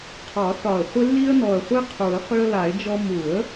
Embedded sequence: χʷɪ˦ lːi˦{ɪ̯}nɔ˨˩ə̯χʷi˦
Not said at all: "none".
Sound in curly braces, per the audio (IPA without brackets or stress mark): ə̯